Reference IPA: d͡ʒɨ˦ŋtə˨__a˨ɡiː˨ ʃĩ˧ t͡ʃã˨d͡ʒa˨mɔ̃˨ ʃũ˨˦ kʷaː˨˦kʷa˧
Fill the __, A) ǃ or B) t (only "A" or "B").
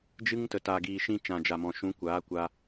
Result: B